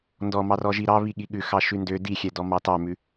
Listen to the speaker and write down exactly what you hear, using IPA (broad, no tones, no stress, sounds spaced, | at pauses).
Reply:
n d ɔ m ɑ r ɔ ʒ i ɾ ɑ β i ɠ i ɠ ʉ x ɑ ʃ ʉ n d ø d i xʲ ɛ d ɔ m ɑ t ɑ m ʉ